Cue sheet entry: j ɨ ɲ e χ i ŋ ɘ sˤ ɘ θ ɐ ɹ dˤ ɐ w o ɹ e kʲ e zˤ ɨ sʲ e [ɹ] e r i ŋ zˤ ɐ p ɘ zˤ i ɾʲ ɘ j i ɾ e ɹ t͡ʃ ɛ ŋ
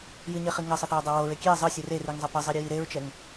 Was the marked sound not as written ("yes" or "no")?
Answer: yes